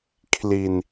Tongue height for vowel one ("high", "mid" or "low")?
high